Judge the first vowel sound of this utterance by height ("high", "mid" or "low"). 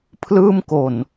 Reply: high